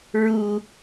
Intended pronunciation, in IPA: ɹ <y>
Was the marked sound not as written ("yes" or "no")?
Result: yes